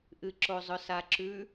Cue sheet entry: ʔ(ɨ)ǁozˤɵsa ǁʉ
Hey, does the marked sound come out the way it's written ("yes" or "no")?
yes